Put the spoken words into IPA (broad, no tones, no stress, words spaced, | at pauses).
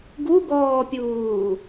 ɡuɡɔːpʲuː